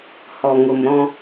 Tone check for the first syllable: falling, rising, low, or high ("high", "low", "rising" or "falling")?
low